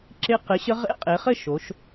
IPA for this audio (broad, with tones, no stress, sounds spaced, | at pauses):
ǁ ɪ˦˥ q ɘ˨˥ ɕ ə˦˥ ʁ ḛ˦˥ qʼ e˩˧ χ ɘ˥˨ ʃ o˩˧ ʃ